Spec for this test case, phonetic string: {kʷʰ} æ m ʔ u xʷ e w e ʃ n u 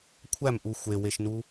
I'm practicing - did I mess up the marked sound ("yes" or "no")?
no